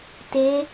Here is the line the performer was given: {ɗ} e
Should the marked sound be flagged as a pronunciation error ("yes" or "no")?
yes